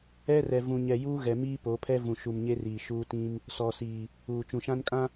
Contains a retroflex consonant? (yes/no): no